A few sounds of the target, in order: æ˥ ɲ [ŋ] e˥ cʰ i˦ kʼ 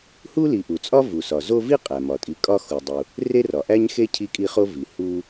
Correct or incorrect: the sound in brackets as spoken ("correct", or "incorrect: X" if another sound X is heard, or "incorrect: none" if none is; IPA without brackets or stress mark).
incorrect: x